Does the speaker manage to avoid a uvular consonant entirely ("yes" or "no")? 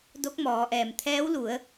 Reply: yes